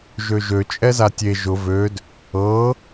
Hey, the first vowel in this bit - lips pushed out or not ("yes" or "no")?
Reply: yes